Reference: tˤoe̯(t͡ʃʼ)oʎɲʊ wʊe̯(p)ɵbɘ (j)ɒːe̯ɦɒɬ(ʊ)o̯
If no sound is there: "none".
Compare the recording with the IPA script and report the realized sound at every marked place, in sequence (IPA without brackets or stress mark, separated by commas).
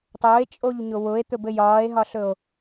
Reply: t͡ʃʼ, t̪, j, ɵ